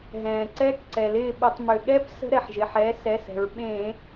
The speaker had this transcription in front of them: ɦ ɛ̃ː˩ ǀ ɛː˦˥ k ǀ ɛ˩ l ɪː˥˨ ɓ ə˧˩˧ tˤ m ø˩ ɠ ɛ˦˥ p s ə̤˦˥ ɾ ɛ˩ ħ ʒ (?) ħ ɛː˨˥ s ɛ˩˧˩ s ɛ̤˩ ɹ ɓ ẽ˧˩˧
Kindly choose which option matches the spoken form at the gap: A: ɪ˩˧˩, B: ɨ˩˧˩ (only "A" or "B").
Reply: A